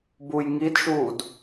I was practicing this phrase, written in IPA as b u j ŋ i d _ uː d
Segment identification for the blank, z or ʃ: ʃ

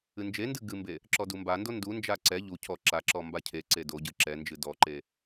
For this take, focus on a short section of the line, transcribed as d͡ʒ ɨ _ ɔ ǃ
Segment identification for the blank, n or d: d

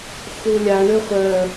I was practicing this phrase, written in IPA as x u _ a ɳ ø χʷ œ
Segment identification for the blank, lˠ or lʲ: lʲ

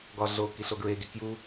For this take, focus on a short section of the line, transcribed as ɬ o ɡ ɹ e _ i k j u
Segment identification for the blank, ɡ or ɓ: ɡ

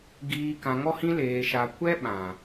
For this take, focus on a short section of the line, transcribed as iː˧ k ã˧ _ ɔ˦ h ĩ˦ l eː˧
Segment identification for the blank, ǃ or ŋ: ŋ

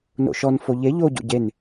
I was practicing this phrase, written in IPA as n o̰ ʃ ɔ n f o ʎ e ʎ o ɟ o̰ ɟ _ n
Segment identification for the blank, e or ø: e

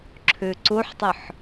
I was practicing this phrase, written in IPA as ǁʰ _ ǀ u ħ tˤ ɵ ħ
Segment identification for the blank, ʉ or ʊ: ʉ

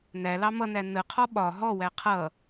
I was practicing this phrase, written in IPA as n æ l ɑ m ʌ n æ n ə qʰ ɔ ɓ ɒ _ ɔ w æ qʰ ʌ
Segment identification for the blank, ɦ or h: ɦ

